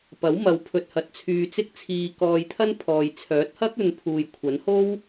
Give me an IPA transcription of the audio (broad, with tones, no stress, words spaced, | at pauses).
pɐ˨˥wmɐ˨˧w pʰɵ˧t̚hɐ˨˥t̚t͡sʰyː˧t͡sɪ˥k̚ t͡sʰiː˧kɔː˧jt̪ʰɐ˥n pʰɔː˨j t͡sʰœː˨˥t̚hɐ˥k̚ɵ˨˧n pʰuː˨jkʷʰɐ˨˥nho˥w